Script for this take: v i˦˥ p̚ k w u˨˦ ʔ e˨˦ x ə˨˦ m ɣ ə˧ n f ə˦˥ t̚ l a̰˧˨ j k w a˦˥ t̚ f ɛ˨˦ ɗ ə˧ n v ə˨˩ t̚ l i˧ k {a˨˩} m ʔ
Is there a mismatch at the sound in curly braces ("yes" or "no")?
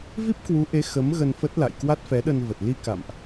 yes